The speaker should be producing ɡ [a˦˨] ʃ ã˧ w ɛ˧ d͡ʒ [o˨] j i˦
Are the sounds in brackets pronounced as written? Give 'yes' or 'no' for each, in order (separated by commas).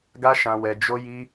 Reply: no, no